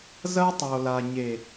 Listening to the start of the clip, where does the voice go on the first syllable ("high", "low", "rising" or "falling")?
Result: high